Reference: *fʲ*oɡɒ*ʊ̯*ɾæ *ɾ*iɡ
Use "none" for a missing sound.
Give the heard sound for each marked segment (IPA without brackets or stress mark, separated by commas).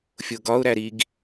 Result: fʲ, ʊ̯, ɾ